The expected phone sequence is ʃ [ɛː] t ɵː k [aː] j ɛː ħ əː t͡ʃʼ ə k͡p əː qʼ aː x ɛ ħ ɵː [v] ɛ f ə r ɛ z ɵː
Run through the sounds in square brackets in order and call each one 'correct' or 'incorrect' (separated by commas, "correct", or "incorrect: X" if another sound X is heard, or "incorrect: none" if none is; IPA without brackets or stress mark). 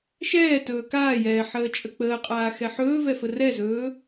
correct, correct, correct